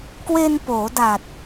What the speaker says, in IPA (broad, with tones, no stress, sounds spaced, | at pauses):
k w e˧ n p oː˩˦ d a˨˩ t̚